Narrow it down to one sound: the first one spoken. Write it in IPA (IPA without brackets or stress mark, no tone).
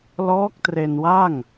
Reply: l